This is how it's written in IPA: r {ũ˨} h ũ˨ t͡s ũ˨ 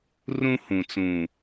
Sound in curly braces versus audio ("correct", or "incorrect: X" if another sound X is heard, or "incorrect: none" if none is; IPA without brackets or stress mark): incorrect: ũ˦